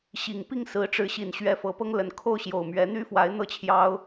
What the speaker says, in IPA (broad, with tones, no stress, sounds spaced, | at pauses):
ɕ i˨˩ ŋ p i˥˨ ŋ s ɹ̩˨˦ ʈ͡ʂ ɻ̩˨˦ ɕ i˨˩ n ɕ ɥ ɛ˨˦ f ɤ˨˦ p ɤ˦ ŋ l ə˨˦ n kʰ o˥˨ ʊ̯ ɕ j o˨˩ ʊ̯ m ɥ ɛ˨˦ n̪ y˦ f w a˨˦ ɪ̯ n̪ ɤ˥˨ t͡ɕʰ j ɑ˦ ʊ̯